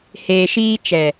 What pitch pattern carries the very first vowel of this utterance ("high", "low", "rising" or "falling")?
low